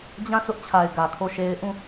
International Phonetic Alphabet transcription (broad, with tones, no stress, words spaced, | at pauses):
d͡ʑã˦˨sʊ˦ʔt͡ɕʰa˨ɪ̯ ɡä˨kʰo˦˨ʃe˦ɪ̯ ʔũ˦˨